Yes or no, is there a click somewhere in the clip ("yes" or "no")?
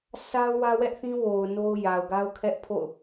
no